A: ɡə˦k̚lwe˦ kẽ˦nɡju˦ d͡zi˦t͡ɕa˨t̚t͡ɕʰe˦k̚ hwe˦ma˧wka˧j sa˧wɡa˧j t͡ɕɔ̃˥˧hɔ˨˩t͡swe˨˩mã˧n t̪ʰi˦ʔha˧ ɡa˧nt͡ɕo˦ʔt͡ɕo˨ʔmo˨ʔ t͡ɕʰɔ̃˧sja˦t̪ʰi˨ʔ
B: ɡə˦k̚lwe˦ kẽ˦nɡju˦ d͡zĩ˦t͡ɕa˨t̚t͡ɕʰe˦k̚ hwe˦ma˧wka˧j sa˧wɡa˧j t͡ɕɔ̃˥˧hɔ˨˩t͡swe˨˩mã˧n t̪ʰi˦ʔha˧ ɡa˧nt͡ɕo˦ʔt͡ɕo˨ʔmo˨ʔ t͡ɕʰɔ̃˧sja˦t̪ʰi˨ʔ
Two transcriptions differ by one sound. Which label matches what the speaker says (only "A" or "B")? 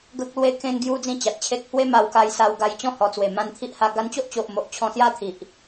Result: B